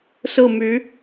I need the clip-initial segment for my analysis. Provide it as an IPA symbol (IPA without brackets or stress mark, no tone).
s